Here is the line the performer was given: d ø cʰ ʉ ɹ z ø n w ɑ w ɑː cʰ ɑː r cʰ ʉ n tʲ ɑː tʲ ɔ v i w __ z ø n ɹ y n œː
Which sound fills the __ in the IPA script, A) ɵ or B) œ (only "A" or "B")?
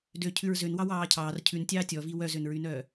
B